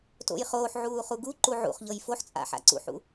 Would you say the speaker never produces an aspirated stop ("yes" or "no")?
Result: yes